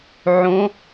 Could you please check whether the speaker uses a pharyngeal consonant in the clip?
yes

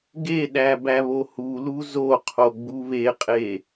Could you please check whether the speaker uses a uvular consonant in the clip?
yes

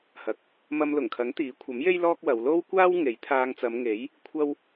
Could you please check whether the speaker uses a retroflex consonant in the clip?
no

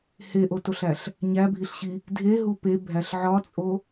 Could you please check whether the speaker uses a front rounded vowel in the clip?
no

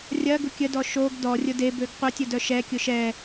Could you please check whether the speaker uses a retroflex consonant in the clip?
no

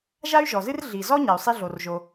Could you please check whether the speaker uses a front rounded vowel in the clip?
yes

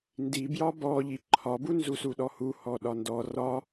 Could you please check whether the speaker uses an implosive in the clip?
yes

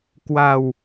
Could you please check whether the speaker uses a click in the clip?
no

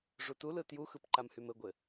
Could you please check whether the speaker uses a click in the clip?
yes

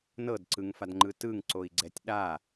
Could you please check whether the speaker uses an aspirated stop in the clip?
no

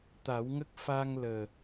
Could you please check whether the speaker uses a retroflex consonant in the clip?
no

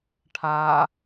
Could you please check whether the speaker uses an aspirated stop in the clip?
yes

